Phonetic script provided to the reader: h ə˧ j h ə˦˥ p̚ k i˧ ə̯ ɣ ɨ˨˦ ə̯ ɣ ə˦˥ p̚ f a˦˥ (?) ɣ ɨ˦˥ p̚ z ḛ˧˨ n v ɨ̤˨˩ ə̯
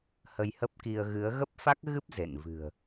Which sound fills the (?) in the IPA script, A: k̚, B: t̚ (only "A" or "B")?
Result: A